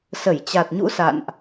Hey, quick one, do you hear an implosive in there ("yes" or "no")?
no